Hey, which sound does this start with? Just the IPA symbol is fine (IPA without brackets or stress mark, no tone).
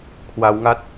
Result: kʰ